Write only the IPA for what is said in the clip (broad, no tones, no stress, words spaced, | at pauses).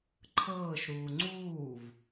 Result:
ǃʰɤːʃɾuː ŋ͡ǀuːv